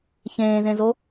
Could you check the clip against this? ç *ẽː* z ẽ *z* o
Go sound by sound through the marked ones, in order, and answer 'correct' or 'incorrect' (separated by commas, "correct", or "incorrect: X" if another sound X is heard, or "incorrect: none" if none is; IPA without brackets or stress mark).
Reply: correct, correct